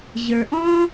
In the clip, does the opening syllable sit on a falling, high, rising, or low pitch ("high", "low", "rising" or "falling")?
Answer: low